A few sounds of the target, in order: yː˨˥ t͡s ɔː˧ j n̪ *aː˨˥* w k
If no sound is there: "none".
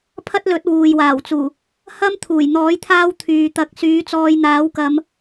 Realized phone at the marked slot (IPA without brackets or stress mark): aː˨˥